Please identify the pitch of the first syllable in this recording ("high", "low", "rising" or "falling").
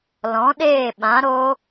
rising